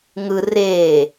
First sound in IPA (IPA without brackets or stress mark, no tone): ŋ